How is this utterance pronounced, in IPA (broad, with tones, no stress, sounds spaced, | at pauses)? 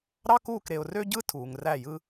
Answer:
ɾ ɑ˦ k uː˦˨ k ɾ e˨ ʊ̯ r ø˦ ɟ ɯ˦ tʰ uː˨ ŋ r æ˦˨ j ɯ˦